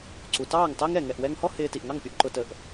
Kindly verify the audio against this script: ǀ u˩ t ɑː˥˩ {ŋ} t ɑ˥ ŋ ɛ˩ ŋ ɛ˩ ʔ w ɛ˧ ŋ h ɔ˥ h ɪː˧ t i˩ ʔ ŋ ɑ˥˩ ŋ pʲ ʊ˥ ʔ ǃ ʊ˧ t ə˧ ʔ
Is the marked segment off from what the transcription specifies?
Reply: no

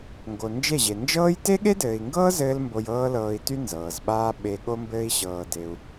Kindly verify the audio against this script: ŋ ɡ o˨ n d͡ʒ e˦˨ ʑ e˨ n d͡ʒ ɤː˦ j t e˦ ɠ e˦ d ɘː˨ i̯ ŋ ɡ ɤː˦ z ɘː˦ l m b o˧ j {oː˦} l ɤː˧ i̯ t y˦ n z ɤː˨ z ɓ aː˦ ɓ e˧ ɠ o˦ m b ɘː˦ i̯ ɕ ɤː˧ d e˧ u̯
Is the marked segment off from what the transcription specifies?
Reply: yes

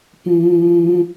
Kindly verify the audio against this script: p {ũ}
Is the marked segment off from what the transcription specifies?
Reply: yes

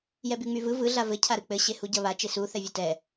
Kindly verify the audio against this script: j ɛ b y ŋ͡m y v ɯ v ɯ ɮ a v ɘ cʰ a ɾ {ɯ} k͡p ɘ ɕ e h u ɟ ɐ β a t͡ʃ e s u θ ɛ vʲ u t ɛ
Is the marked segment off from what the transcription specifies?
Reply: no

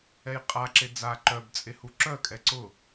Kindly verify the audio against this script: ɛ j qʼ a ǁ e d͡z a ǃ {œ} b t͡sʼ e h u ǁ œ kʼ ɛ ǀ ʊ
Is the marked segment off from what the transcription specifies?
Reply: no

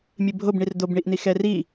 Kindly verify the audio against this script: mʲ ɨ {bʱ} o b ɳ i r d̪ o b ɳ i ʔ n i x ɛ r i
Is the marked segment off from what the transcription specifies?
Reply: no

